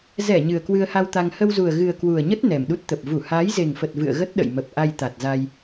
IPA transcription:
z ɛ˧˩ ɲ ɨ˨˩ ə̯ k w ɨ˧ ə̯ h a˧ w t̪ a˧ ŋ h ə˧ w z u˨˩ ə̯ ɣ ɨ˨˩ ə̯ k w u˨˩ ə̯ ɲ ə˦˥ t̚ n ɛ˨˩ m ɗ u˦˥ t̚ t̪ ə˨˩ p̚ v u˧˩ h aː˨˦ j z e˨˩ ŋ f ə˨˩ t̚ v ɨ̰˧˨ ə̯ ɣ ə˦˥ t̚ ɗ ə̰˧˨ j m ə˨˩ p̚ ʔ a˧ j t̪ a˨˩ t̚ z a˧ j

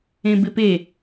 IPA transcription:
ẽ b ɪ p e

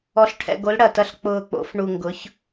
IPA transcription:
ɔ˩˧ ɬ ʈʰ ɛ̰˨˩ ɡ o˩˧ l ɽ ɐ˨˩ t ɐ˨˩ ɬ k͡p ʊː˨˩ k͡p o̰˩˧ f ɳ u˨˩ ŋ ɡ ʊ˩˧ ç

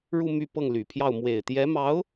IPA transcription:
ɻ u˥˧ m y˥˧ p ɤ˥˩ ŋ l y˨˩ pʰ j ɑ˥˩ ʊ̯ m w e˨˩ ɪ̯ t̪ j ɛ˧˥ m ɑ˧˥ ʊ̯

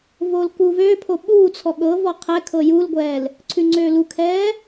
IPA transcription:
v oː l k uː v øː pʰ o ɓ uː t͡sʰ ɔ ɠ ɤ v ɔ qʰ ɛ kʰ ɤ j u l ɡʷ ɛː l | ǀʰ ʉ ŋ͡ǀ øː l u kʰ ɛː

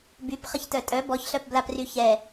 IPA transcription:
b y p χ ə ç t œ tʼ œ b ɔ ç ɬ œ p b l a p r y ç ɛ

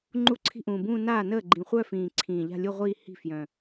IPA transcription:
ŋ͡ǃ u˥˩ ǀʰ i̤˥˧ ʔ ũː˨˩ b ũː˥˧ n aː˥˩ n əː˥˩ ɡ͡ǃ ĩ˨˩ χʷ œ˥˧ f ĩː˨˩ ǀʰ ĩː˨˩ ʎ a̤˥˧ lʲ u˥˧ ʁʷ iː˥˧ h i̤˥˩ f j œ̃˨˩

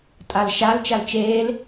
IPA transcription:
tʼ a l ʃ a l t͡ʃ a l t͡ʃ eː l

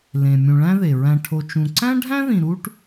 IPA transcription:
l ẽ˩ mʲ ũ˩ ɭ æ̃˦ ð e˩ ɹ æ̃˨ ʈʰ o˨ t͡ʃ ũ˩ ǀ æ̃˥ ɖʱ æ̃˥ ð ĩ˩ ɾ u˦ ʈ

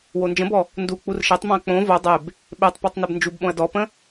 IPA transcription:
w o n d͡ʒ ə̃ b ɔ | n d u k͡p u r ʃ e tˤ m õ ɐ̯ k͡p õ v o dˤ e b | ɓ e tˤ p ɔ tˤ n e b n d͡ʒ u b ɓ õ ɐ̯ d ɔ p ə̃

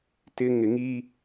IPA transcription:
t ɪ ŋ ɪ ŋ i

